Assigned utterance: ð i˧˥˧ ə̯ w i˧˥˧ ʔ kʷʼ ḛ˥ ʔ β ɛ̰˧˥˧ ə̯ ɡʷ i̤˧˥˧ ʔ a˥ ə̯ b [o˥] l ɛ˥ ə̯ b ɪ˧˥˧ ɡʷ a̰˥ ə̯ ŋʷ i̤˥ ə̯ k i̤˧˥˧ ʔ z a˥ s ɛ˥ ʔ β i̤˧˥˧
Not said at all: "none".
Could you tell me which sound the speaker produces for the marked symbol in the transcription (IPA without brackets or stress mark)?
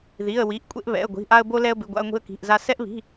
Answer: o˥